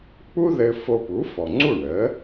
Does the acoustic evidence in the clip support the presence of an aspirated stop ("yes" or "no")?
no